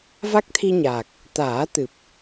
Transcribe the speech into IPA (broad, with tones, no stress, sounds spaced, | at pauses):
v a˦˥ k̚ t̪ʰ i˧ ɲ a˨˩ k̚ | t̪ aː˨˩˦ t̪ ɨ˨˩ p̚